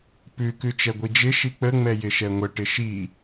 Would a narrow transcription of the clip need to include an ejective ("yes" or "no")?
no